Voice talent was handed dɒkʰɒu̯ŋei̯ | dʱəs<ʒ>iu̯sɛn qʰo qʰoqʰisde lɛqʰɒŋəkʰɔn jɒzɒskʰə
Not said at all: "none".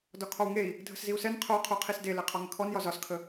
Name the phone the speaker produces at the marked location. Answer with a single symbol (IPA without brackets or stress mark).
z